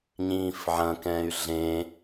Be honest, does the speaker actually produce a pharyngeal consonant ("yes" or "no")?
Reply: yes